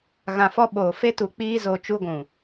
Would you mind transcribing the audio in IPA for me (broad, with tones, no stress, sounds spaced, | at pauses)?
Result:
ɣ ã˨ f ɔ˧ ɓ oː˨ f e˦ t u˨ k͡p iː˧ z o˨ t͡ʃ u˧ ɡʷ ũ˨